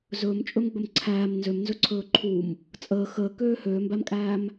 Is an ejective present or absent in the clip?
present